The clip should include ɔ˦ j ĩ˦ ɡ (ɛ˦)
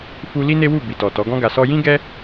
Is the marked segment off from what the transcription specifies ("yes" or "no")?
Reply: no